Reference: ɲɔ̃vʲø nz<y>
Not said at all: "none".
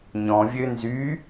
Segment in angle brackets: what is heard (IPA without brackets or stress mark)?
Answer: y